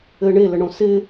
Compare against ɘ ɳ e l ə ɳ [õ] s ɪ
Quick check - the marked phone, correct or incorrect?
correct